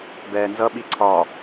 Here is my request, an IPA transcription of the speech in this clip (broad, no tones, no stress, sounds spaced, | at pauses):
b ɛː n z ʌ ɓ i ǀʰ ɒ